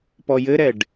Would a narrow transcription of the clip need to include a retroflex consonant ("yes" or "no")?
yes